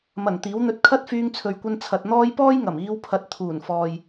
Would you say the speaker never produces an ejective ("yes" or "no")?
yes